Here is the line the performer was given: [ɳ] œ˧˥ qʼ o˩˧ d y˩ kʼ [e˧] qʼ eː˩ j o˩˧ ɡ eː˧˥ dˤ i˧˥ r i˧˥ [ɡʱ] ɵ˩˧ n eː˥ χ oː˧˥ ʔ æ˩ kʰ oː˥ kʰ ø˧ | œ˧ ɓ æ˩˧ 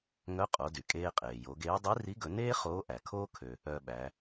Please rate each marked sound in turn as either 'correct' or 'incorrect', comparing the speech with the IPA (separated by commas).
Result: incorrect, incorrect, incorrect